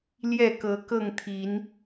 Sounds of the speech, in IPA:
l j ɛ˥˨ k ɤ˨˦ k ɤ˥˨ ŋ t̪ʰ i˨˦ n

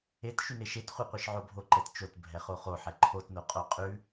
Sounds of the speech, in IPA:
e t ʃ ʉ n e ʃ e t χʷ ɛ qʷ e ʃ ʕ o bʱ o ǃ ɛ t t͡ʃ o t bʱ ɛ χ o χ o ħ ɛ ǃʰ o t n o qʼ o qʼ ʉ

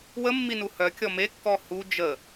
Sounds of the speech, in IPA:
w ə mː i n u h œ kʲ ɔ m e kː ɔ h u d͡ʒ ə

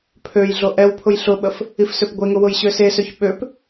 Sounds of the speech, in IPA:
pʰ ø j ɮ o ʔ ɛ w pʰ ʊ j ɬ ʊ ɓ ə f | i f s ø p ɡʷ e ŋ ʊ w ʊ j ɕ ø s e s ø ç ɓ ø p

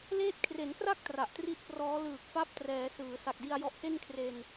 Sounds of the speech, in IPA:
l eː˦˥ t̚ kʰ r e˩˦ n k r a˥˩ k̚ t r a˨˩ ʔ t r i˥˩ t̚ p r ɔː˦˥ l ɯː˨˩ k̚ f a˦˥ p̚ t r ɛː˩˦ s ɯː˩˦ s a˨˩ k̚ d i˧ a̯ j ɔ˦˥ ʔ s e˥˩ n kʰ r e˧ n

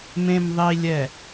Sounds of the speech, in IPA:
m ẽ˨ m ðˤ i˨ lʲ ɛ˨

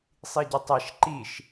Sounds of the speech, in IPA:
sˤ i ɟ ə tˤ ɛ ʃ ǃ i ʃ

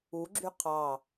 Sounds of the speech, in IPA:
u ɡ͡ǁ y qʰ ɑ

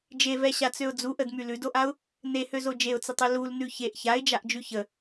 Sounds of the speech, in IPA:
d͡ʒ e v ɛ ɕ a t͡s ø ʊ̯ d͡z u ʔ ə d m y l ʉ d o ʔ a ʊ̯ | n e h ø z o d͡ʒ e ʊ̯ t͡s ə tˤ ø l u l n ʉ ç e ʔ ç a ɪ̯ d͡ʒ a ʔ d͡ʒ ʉ ç ə

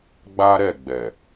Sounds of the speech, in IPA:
ɡ͡b a˦ ɾ ɛ˦˨ ɡ͡b ɛ˨

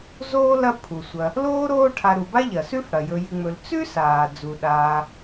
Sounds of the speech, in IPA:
z oː˥ l ɐ˦ pʰ u˩ sʷ ɐ˨ | l oː˥ ɾ oː˦ ʈʰ a˨ ɾ u˩ b a˥ ʎ ɐ˩ s ʉ˥ f ɽ ɐ˩ j ɵ˨ j ɨ˨ ŋ͡m ɵ˨ l t͡s ʉ˥ s aː˩ d͡z u˩ ɗ aː˨

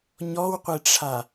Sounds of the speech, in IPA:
ɲ ɔ w qʷ e ʈ͡ʂʰ a

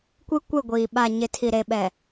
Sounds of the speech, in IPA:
kʷ i˦ kʷ e˦˨ ɡʷ iː˨ ɓ a˨ ɲ ɪ˨ tʰ i˨ ɾ e˨ ɓ ɛ˨

